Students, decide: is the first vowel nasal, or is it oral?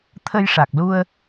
oral